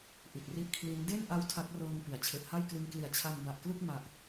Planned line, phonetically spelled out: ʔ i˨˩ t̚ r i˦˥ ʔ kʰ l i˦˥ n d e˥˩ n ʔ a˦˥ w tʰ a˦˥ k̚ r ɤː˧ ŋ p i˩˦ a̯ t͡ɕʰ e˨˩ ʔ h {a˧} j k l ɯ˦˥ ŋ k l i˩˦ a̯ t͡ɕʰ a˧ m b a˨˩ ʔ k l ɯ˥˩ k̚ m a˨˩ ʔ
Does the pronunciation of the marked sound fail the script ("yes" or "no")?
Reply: yes